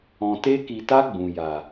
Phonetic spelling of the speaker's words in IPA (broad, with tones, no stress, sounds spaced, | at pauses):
ɔ̃˨ t e˧ k i˨ t a˧ ɡ͡b ũ˨ j a˨